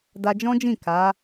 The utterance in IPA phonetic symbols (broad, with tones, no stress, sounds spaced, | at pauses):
d a˧ d͡ʒ ɔ̃˦ d͡ʒ ĩ˦˨ k a˨˦